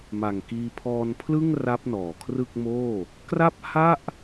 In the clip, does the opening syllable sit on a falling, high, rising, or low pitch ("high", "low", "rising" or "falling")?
low